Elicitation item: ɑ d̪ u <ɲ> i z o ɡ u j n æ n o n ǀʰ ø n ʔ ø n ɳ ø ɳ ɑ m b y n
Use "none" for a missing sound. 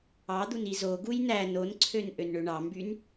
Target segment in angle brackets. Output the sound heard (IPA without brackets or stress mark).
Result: n